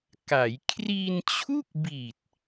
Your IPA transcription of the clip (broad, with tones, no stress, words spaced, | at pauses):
ka˩˦j kʰri˧nt͡ɕʰu˥˩k̚bi˨˩t̚